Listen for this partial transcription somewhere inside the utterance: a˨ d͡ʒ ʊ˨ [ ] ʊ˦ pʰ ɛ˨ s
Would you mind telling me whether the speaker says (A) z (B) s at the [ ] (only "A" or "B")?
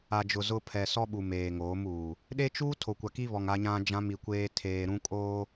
A